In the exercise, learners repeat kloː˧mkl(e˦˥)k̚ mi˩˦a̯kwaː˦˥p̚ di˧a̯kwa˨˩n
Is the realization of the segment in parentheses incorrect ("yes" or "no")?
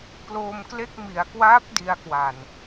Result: yes